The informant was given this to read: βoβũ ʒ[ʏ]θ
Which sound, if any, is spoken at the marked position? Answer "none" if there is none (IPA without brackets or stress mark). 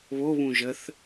ə